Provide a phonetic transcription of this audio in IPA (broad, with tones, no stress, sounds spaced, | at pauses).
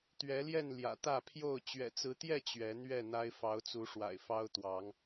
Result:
t̪ ɥ ɛ˨˦ l j ɛ˥˨ n l j ä̰˨˩ t̪ ä˥˨ pʰ j o˥˨ ʊ̯ t͡ɕ ɥ ɛ̰˨˩ t͡s ɹ̩˨˦ t̪ j ɛ˥˨ t͡ɕ ɥ ɛ˨˦ n̪ ɥ ɛ˥˨ n̪ a˦ ɪ̯ f ɑ˨˦ ʊ̯ t͡s u˨˦ ʂ w a̰˨˩ ɪ̯ f ɑ˦ ʊ̯ t̪ w ɑ˨˦ ŋ